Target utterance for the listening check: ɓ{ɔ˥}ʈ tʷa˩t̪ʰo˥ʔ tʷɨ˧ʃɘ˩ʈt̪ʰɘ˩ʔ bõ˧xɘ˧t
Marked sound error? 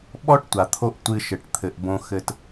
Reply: no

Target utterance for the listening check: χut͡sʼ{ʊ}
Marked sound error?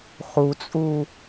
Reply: yes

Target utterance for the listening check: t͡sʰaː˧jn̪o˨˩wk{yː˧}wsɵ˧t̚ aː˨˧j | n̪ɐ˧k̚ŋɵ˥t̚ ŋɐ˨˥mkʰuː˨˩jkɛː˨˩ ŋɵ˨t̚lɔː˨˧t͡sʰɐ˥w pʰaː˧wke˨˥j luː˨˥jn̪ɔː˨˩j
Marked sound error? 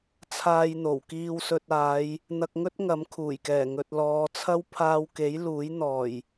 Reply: yes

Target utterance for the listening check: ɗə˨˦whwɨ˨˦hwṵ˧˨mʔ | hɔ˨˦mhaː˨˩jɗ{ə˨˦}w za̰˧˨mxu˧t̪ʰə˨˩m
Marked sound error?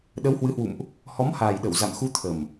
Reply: yes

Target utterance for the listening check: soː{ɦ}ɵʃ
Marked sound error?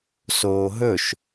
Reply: no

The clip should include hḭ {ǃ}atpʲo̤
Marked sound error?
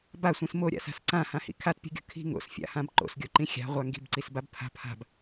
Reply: yes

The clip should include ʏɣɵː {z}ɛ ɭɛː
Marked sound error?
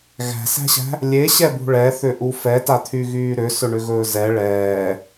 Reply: no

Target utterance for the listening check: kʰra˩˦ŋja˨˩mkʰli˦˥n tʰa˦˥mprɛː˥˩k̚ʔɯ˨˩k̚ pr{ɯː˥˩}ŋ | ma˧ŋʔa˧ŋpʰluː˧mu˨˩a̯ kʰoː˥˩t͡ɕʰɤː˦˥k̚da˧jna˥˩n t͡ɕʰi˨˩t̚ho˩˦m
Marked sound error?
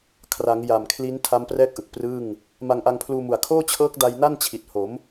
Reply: no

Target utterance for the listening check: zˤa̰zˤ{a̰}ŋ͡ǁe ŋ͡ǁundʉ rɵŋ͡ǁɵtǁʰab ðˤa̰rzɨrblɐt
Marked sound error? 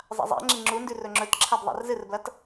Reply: no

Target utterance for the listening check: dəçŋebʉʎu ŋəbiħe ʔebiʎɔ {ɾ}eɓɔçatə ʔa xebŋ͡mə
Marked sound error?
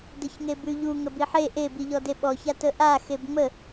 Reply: yes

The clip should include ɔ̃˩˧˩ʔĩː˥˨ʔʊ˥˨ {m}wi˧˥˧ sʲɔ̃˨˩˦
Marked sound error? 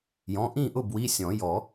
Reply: yes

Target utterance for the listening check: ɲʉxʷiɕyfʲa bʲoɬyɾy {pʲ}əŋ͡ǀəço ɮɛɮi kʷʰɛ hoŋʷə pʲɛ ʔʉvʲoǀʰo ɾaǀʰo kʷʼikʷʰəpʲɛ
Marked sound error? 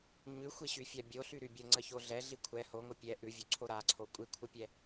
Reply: yes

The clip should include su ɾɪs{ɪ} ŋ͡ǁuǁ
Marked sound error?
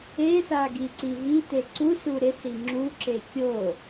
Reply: yes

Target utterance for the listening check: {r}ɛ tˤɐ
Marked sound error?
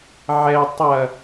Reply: yes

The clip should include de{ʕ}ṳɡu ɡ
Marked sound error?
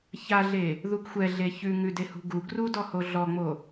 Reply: yes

